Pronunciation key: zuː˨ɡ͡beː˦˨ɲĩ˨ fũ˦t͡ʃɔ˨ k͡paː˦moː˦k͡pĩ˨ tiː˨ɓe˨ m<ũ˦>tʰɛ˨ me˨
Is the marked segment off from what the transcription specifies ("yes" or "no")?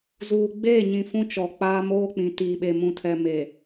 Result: yes